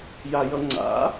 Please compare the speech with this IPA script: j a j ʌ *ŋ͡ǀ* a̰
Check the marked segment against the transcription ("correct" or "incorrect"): correct